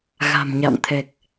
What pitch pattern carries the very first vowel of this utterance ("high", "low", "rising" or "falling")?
low